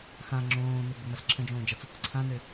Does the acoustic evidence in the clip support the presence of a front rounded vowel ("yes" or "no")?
yes